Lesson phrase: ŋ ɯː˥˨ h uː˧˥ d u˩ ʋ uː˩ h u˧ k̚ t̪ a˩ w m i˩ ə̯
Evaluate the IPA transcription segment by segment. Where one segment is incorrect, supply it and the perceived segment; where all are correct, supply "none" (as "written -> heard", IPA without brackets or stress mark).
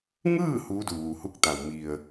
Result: none